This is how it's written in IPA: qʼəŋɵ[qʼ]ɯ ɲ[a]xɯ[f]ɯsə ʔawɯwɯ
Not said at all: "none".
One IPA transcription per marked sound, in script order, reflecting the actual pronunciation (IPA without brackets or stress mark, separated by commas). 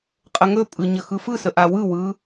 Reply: pʼ, ə, f